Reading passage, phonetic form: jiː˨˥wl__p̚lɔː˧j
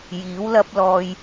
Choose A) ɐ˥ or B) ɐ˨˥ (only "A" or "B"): A